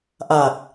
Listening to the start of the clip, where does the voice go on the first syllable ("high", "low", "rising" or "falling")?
low